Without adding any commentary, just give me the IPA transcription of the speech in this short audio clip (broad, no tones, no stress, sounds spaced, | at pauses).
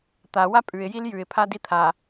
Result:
t̪ a w a pʼ ʉ ɪ̯ j i l j ʉ ɪ̯ pʰ a d i t̪ʰ a